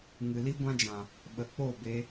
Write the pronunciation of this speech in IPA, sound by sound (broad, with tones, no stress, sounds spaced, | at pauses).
ŋ ɨ˨ l i˦ ɡʷ ã˦ d͡ʒ ã˨ | ɓ ə˨ k͡p o˦˨ b e˧